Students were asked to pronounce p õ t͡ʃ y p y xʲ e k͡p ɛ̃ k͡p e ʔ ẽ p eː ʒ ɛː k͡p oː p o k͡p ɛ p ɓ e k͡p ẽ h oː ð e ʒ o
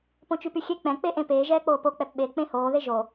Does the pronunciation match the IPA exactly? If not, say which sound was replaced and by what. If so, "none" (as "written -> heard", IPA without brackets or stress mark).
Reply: none